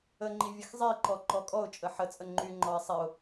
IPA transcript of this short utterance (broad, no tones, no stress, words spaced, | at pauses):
əŋ͡ǃi vʲəxzˤiǃɔ ǃɔkʼɔʊ̯t͡ʃʼə ħət͡sʼə ŋ͡ǃyŋ͡ǃɔɪ̯ sˤiʊ̯